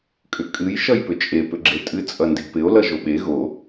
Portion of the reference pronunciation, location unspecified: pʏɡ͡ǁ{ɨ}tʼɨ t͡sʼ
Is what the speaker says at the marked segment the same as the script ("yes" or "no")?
no